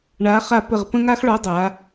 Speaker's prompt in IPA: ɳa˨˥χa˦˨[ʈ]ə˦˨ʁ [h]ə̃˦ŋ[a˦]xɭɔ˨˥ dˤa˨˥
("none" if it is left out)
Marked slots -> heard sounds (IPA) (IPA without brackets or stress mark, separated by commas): p, p, a˦